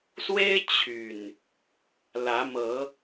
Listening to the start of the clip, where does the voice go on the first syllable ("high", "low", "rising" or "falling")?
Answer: high